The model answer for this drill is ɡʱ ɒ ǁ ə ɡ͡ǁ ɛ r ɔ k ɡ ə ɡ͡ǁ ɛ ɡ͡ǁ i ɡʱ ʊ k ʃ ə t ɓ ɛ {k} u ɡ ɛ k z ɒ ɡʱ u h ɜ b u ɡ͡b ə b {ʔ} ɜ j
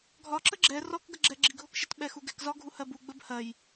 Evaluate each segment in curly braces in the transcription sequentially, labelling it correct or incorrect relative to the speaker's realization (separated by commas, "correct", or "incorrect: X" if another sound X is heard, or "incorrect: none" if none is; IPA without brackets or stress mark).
incorrect: x, incorrect: h